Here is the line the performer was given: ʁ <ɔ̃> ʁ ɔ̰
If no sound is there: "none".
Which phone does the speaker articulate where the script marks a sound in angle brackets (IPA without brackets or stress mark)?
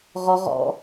ɔ